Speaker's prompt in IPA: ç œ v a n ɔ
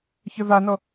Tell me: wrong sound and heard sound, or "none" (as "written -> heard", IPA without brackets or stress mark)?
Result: none